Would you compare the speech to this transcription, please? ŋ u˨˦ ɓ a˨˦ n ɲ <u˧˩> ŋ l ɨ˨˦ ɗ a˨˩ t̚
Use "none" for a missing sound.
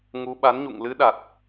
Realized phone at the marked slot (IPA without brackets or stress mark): ṵ˧˨